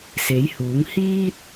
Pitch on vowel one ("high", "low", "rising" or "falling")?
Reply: rising